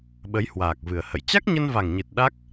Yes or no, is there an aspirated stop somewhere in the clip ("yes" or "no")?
no